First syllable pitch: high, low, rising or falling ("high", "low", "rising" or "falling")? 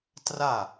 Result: falling